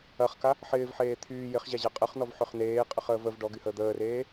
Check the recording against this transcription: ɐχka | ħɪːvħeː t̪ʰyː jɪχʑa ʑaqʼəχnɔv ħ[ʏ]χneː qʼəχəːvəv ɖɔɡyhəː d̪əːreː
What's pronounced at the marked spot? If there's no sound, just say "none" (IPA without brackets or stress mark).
ʏ